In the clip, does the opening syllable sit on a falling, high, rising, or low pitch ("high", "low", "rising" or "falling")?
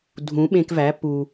rising